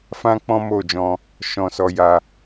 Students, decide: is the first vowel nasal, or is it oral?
nasal